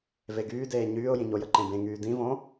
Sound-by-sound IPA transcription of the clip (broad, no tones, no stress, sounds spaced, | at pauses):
v e ɡ yː d eː ɲ yː ʊ̯ j ĩ ɲ o j ə ǃ ẽ b ẽ ŋ yː d ĩ v õ